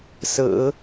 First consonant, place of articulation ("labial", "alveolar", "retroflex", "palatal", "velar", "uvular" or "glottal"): alveolar